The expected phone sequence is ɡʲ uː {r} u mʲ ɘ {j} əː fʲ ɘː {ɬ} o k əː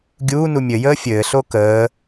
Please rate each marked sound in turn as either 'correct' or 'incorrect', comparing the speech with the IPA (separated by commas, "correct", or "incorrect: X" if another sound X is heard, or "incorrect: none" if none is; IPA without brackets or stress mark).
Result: incorrect: n, correct, correct